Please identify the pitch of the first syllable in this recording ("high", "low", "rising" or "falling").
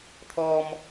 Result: high